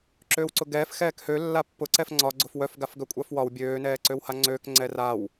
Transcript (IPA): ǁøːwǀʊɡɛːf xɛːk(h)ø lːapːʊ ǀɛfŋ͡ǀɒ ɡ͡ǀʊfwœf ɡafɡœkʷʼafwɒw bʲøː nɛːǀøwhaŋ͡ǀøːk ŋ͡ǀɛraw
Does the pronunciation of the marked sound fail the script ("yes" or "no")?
no